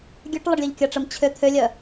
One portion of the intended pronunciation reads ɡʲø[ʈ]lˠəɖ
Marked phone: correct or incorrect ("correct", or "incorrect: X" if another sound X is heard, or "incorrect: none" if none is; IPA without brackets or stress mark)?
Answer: correct